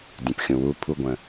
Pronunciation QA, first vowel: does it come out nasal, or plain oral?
nasal